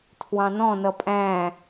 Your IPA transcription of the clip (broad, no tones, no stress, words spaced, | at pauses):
tʰwɑ̃nɔ̃ nʌpʼæ̃